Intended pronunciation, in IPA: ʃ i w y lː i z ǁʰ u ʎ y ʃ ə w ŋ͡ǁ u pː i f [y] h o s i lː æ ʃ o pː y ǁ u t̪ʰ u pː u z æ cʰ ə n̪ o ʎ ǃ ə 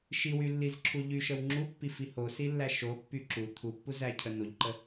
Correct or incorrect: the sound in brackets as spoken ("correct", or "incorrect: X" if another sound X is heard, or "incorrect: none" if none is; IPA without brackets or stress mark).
incorrect: i